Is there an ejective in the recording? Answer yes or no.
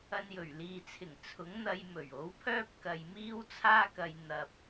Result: no